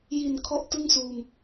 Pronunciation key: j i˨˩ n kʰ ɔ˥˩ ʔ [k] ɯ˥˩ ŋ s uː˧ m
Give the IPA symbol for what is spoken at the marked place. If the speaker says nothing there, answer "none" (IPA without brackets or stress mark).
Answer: t